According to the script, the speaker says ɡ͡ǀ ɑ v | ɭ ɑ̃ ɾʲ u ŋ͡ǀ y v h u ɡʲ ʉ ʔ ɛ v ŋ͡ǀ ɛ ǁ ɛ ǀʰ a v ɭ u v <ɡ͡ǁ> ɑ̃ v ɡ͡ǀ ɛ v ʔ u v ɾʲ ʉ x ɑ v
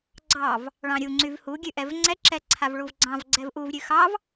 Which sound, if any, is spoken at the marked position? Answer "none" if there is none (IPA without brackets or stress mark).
ɡ͡ǀ